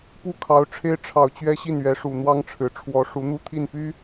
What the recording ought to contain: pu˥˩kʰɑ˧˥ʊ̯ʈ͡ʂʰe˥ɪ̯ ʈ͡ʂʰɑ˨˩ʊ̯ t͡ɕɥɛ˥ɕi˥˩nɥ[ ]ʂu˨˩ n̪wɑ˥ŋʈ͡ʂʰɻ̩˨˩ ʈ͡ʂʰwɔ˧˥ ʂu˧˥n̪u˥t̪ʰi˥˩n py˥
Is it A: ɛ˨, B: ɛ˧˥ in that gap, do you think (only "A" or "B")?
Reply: B